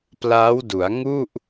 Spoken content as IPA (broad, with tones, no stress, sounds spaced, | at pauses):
p l aː˦˥ w d u˩˦ a̯ ŋ u˥˩ ʔ